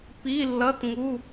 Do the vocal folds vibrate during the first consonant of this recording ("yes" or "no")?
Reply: no